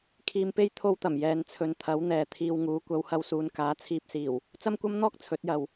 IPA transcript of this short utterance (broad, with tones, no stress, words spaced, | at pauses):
kʰiː˧mpe˥j t̪ʰo˥wt̪ɐ˨˩m jɛː˨nt͡sʰɵ˨nt̪ʰɐ˨˥w n̪ɛː˨ t̪ʰiː˧wŋuː˨˥ kʷɐ˨˧whɐ˧wsuː˨˧nkaː˨˥ t͡sʰiː˧p̚siː˨˩w | t͡sɐ˥mkʷɐ˥mn̪ɔː˥k̚ t͡sʰɵ˨˥t̚jɐ˨w